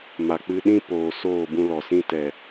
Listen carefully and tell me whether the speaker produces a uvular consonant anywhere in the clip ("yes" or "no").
no